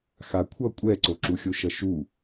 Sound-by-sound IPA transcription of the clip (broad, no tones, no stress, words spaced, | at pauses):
xakʷʰʌ kʷʼɛǀoǁuxʲo ʃʌʃu